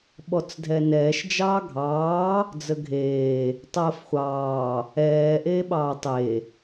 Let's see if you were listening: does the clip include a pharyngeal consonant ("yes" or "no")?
no